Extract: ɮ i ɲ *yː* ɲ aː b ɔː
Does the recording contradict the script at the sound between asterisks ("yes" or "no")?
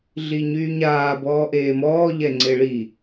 no